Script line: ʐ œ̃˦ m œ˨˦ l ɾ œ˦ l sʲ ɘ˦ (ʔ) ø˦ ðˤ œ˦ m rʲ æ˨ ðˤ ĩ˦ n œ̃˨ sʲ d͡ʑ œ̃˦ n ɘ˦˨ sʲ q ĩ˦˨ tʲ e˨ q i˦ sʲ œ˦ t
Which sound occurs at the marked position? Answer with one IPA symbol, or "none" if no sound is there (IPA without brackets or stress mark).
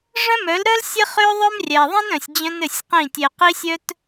χ